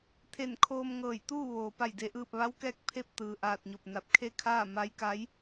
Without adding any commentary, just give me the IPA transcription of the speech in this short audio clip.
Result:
t̪ʰ e˧˩ n kʰ oː˧ m ŋ ɤː˧˩ j t̪ uː˥˨ ʋ oː˩ p a˧˩ j d e˩ ʔ ɯː˧˩ p̚ ʋ a˧˥ w k ɛː˧˥ k̚ pʰ e˥˨ p̚ t̪ ɯː˩ ʔ aː˧˩ t̚ ɲ o˧˩ p̚ n a˧˩ p̚ kʰ e˥˨ kʰ aː˥˨ m a˧˥ j k a˧˥ j

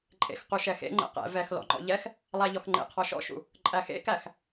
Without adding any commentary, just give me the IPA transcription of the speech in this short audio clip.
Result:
ǃʼ ḛ x q u ʃ ɛ x ḛ ŋ͡ǃ ɛ̰ q ɛ̰ v ɛ x l ɔ̰ ŋ͡ǃ ɔ̰ ʎ ɛ x | lˠ æ ʎ ɔ x ŋ͡ǃ ḛ qʰ ɔ ʃ ɔ̰ ʃ ṵ | ǃʼ æ x ḛ k æ x

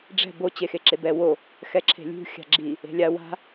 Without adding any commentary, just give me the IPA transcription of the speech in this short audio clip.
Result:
ɖ͡ʐ ɛ̤ b o t͡ɕ e x e ǁ e b ɛ w o | x ɛ ǁʰ e̤ lʲ ṳ xʲ a̤ ɡ͡ǁ i | e̤ lʲ a w a̤

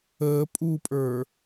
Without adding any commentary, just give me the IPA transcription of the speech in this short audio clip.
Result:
əː pʼ u pʼ ə˞

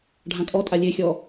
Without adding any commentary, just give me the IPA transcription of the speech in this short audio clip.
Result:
ɖʱ ã kʼ ɔ tʼ a lʲ e xʲ ɔ

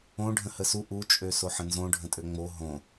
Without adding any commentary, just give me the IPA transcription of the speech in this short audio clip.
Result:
õ ɖʱ ə̃ h ə s u ʔ u t͡ʃʼ ø s o ħ ə̃ n z õ ɖʱ ə̃ tʼ ø ŋ͡m o ɦ õ

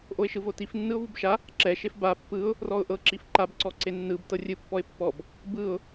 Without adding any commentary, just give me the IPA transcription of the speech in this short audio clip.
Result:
ʔ o ɪ̯ ʃ ɯ v o t i f nː ɯ ʊ̯ v u b ʃ a | ǁ ɛ ʃ e f b a pː ɯ ʊ̯ | r ɔ ʊ̯ ʔ ɤ ǁ i f ǃ a b ǀ ɔ ǀ e nː ɯ b t ɤ rʲ ɯ pː ɔ ɪ̯ pː ɔ b | b ɯ ʊ̯

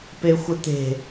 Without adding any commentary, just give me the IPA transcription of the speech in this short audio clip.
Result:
p e xʷ ə t̪ e̤

